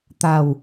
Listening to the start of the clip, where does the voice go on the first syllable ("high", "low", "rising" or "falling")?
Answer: falling